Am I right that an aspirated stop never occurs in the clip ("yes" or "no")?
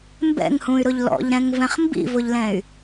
yes